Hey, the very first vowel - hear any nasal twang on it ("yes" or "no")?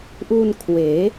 no